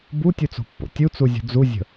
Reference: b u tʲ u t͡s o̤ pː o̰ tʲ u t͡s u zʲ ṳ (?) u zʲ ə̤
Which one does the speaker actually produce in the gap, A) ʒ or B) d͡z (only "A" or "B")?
B